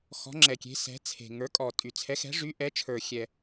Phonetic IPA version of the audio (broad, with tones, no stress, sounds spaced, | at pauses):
x ɔ̤˨˥ ŋ͡ǁ ɛ˨˩ kʲ e̤˨˥ s ɛ̤˨˥ t͡sʰ e̤˨˩ ŋ ə˞˨˥ kʼ ɔ˨˩ tʼ y˨˩ t͡sʰ ɛ˨˥ x ɛ̤˨˥ ʐ y˨˥ ʔ ɛ˨˥ t͡ʃʰ ə˞˨˩ xʲ ɛ˨˩